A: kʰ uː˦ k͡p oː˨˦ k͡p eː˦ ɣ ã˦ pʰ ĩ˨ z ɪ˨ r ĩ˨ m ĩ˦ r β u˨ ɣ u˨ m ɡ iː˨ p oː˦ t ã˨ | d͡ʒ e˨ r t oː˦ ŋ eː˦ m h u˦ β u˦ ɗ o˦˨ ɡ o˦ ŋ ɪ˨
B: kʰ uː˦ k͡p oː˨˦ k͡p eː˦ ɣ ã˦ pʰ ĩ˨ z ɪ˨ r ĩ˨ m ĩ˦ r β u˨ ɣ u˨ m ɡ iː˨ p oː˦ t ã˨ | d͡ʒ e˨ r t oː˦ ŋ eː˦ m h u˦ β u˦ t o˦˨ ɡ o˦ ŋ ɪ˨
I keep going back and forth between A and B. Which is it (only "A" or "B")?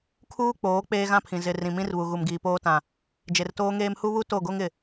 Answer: B